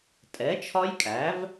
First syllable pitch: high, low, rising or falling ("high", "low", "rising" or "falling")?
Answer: rising